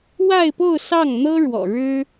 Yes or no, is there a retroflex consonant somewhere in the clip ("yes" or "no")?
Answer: yes